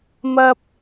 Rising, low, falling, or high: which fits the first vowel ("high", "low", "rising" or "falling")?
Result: high